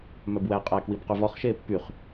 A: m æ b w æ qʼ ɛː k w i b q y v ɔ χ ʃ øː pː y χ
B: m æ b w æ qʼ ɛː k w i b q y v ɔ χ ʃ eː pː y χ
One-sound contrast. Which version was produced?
B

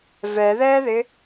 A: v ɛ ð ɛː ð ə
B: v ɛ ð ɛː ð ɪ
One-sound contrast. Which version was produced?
B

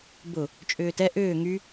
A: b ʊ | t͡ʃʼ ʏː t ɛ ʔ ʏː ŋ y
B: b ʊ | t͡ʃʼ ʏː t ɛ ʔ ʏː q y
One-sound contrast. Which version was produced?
A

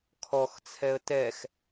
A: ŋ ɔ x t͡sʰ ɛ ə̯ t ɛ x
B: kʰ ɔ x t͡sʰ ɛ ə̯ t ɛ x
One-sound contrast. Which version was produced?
B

